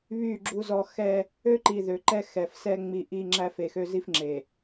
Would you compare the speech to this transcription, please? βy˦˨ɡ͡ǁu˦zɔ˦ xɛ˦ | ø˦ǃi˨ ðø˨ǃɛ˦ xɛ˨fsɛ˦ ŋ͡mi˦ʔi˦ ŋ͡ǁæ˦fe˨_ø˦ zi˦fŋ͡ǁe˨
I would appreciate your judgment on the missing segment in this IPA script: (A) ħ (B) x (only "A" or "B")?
B